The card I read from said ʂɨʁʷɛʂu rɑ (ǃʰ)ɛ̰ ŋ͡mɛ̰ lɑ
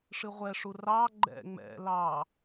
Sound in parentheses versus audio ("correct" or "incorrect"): incorrect